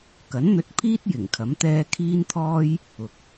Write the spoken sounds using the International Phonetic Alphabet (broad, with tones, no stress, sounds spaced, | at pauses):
k ɐ˨˥ n n̪ ɵ˧ t̚ pʰ iː˥ t̚ j ɪ˨˩ ŋ kʰ ɐ˨˥ m t̪ ɛː˥ kʰ iː˥ n t̪ʰ ɔː˥ j | ʊ˨ k̚